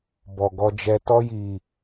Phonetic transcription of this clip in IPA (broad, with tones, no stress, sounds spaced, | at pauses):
b ɔ˨ ɡ ɔ˧ d͡ʒ ɛ˧ t ɔ˧ j i˨